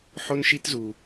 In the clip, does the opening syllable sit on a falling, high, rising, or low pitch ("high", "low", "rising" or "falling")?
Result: high